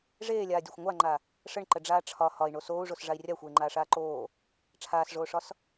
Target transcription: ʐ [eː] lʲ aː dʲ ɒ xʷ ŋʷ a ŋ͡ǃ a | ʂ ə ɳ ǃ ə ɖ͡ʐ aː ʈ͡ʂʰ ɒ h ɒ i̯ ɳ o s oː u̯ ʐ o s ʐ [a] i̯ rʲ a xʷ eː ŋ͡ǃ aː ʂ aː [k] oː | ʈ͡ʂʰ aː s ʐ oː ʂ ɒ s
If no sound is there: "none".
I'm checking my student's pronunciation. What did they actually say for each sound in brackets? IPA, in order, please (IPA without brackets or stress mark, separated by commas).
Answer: eː, a, ǃ